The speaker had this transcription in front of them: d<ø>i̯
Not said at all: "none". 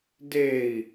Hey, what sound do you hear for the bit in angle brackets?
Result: e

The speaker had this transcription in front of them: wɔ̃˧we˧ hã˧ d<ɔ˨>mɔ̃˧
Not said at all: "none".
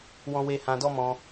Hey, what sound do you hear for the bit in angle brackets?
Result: ɔ˦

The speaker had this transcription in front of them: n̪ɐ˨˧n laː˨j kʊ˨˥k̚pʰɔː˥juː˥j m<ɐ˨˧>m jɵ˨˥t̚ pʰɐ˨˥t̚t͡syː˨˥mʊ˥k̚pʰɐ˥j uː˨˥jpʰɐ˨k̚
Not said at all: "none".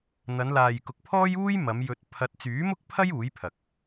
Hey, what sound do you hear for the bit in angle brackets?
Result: ɐ˨˧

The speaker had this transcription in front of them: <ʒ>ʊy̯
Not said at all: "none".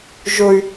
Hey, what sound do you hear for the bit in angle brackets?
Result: ʒ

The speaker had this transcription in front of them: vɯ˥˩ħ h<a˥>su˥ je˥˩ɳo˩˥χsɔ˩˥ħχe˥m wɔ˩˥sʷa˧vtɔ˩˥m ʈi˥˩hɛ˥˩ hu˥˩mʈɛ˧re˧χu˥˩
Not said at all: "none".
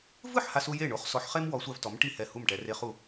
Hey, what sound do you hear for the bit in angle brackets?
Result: a˥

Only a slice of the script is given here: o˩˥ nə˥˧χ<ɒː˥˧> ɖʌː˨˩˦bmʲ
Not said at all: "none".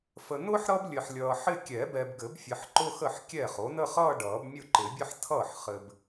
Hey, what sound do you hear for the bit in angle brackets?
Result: ʌː˥˧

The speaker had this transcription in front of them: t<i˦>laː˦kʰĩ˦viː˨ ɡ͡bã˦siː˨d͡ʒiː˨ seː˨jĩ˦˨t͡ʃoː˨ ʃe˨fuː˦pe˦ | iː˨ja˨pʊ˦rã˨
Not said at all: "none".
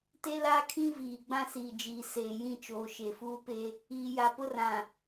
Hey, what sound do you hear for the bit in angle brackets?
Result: e˦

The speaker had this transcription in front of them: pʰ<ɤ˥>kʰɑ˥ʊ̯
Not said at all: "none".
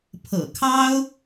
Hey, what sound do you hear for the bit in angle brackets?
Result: ɤ̰˨˩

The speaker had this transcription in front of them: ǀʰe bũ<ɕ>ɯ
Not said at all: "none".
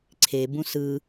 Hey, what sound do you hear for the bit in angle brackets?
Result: s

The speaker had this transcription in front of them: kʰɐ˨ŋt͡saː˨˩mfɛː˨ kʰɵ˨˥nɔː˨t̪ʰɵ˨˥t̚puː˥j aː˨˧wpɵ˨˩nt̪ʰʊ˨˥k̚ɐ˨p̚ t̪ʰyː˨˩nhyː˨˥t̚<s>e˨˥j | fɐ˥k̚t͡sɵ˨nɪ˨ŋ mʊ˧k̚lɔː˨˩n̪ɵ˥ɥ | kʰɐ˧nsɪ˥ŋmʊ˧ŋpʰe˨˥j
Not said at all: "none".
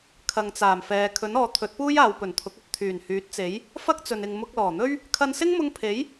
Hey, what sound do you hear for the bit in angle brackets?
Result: t͡s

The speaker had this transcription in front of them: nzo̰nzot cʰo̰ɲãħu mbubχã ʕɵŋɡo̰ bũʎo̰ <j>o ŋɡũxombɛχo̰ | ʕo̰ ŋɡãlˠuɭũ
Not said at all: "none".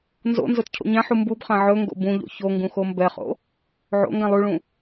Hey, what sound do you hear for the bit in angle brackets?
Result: ç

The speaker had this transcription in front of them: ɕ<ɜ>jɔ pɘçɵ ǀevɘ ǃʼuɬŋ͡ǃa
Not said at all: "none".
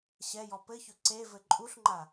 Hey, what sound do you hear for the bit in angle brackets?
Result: ɛ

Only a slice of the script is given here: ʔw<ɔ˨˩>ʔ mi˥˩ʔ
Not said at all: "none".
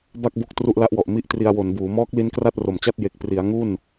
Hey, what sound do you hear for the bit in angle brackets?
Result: ɔ˨˩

